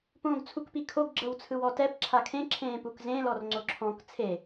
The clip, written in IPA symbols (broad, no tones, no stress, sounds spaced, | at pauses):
p õː ɡ t͡sʰ u k p i kʰ o ɡ ɡ͡ǁ ɤ w t͡sʰ ɯ w ɔ t ɛ p ǁʰ a kʰ ẽ ǁʰ ẽː p u k z ẽ l ɔ r ŋ͡ǀ o ǁʰ ɔ̃ k t͡sʰ e